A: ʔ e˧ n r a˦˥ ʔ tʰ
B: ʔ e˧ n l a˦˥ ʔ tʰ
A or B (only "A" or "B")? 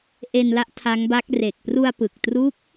B